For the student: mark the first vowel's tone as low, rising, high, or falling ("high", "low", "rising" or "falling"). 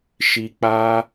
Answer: low